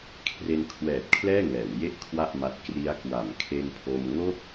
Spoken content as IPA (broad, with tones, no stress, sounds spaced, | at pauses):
kʰ r e˧ n kʰ w ɛː˨˩ t̚ kʰ l ɛː˥˩ ŋ ɛː˩˦ w j e˥˩ ʔ kʰ w a˥˩ ʔ m a˦˥ t̚ k r i˦˥ a̯ k w a˩˦ m kʰ e˧ n pʰ o˧ m ŋ o˥˩ k̚